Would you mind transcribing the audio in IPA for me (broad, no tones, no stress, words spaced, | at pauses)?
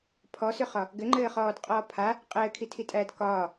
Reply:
pʰɔsʏχɒ | ɡɘŋ͡ǃɘːχɔːdqʼɔː pʰa | qʼɘːkʰitʰitʼæːd kɒː